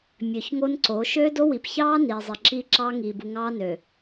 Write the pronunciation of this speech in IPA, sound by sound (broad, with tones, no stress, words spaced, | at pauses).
mʲø˨çŋo˦nǀo˨˦ ʃøː˦do˦ wi˨p çɑː˦ niː˨zˤi˨ǁiː˦ǁɑː˦ ŋiː˨bu˨ ŋɑː˦nø˨